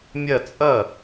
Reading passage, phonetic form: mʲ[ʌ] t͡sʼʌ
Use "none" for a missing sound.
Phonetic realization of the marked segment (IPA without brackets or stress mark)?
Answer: ʌ